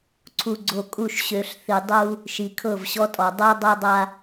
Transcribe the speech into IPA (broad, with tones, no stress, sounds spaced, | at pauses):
ǀʰ u˨ ɡ͡ǀ o˨ kʼ u˦˨ ʃ ɕ ø˨ ɬ θ i˨ dˤ u˦ | ʃ i˨ kʰ ɤ˦˨ v ɕ ɔ˦ tʼ ɔ˨ dˤ ɤ˦ dˤ ɤ˦ dˤ a˦